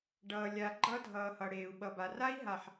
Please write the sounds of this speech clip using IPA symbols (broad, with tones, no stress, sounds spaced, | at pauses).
ɖ ʌː˨ lʲ a˨ ɡ͡ǃ ʌ˦ dʱ ʌː˨ h ʌ˨ ɽ eː˨ u̯ ɓ ʌ˨ b a˨ r a˦ i̯ ɦ a˨ ħ